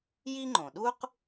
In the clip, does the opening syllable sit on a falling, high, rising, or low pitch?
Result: high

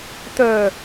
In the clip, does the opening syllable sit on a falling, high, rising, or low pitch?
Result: low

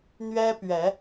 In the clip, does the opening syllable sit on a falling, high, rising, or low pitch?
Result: high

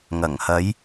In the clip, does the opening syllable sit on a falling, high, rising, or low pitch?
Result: low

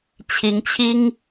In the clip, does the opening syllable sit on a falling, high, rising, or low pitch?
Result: rising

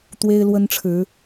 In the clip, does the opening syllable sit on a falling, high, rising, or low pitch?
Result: high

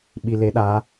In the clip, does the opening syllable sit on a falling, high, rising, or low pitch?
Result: low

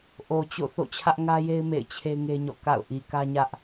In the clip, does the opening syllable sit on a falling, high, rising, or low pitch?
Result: low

